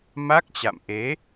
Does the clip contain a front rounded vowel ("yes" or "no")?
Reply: no